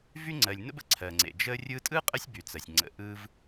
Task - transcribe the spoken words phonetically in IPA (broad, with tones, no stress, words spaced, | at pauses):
vy˥ŋ͡ǀɜ˨lʲnə̰˥bə̰˨ ǀʰɜ˩ŋ͡ǀḛ˩ d͡ʒə˥rʲɯ˥ tʼɯ˥qʼə˦sʲ by˨t͡sɜ˩sʲŋ͡ǀə̰˨ ʔɯ˦v